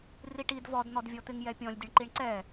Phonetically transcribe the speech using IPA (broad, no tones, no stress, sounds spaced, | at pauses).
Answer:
r i ʈ i d v ɔ d n̪ ɔ d vʲ ɔ t̪ ɪ ŋ j ɛ pʲ ɔ̃ lʲ dʲ ə ɳ ǃ i ɳ ǀ ɛ